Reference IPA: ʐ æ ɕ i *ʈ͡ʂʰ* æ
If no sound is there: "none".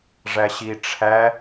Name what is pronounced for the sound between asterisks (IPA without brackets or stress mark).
ʈ͡ʂʰ